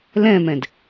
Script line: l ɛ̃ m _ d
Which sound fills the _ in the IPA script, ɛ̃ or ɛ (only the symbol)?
ɛ̃